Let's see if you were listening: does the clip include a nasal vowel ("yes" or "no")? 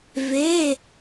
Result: no